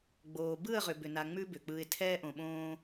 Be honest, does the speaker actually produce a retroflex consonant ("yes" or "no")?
no